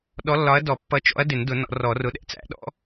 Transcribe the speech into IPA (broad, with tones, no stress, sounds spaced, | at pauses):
ɗ ɔ˨˥ lː ɒ˨˥ ɐ̯ d ɔ˨˩˦ pː ʌ˨˥ t͡ʃ ɔ̰˨˥ ɐ̯ d ɪ˨˩˦ n d ʊ˨˩˦ n ɔ̰˨˩˦ r ɔ˨˩˦ r ʊ˨˥ ɗ ɛ̰˨˥ t͡s æ̰˨˩˦ ɗ ɔ̰˨˩˦